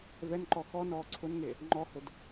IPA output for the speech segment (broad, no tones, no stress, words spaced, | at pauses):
vɛnǃɔ xɔnɔː ǀʰʊnŋe | ŋ͡ǃɔhʊd